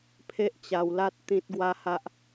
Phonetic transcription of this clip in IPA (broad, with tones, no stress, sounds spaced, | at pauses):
pʰ e˦ ʔ t͡ɕ a˧ w l a˦ t̚ t̪ ĩ˦ t̚ ɡ w a˦ h a˦ ʔ